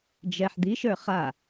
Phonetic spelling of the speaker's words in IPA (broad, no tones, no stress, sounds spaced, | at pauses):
d͡ʒ ɛ ħ d̪ i ʃ ə˞ χ a